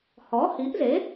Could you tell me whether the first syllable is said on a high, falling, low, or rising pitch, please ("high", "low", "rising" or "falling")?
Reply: rising